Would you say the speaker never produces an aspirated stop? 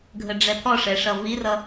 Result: no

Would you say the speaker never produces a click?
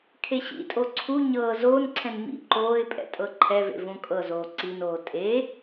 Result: no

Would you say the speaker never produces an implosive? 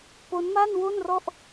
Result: yes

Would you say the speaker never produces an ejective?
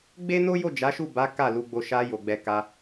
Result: yes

